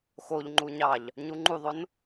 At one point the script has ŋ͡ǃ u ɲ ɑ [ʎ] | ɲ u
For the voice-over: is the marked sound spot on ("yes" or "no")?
yes